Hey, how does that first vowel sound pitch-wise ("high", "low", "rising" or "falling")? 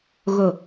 low